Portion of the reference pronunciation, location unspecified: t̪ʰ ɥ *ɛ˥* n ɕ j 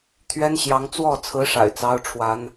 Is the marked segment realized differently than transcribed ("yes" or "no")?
no